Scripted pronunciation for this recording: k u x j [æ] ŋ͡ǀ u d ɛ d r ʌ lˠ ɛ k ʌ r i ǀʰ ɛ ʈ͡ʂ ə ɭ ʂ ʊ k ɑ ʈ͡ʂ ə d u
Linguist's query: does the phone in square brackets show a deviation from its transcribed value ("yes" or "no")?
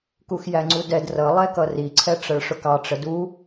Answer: no